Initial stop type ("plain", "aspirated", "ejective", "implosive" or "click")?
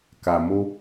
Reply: plain